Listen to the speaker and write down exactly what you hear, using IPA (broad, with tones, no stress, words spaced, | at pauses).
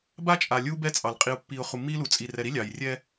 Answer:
ba˦t͡ʃʼa˨lʲu˦ bɛ˦t͡sʼɑ˨l qʼi˨ʊ̯pːi˨ʊ̯ χu˨mːi˦lu˨ t͡sʼi˨rɛ˨ɾi˦ lʲɑ˨jrʲɛ˦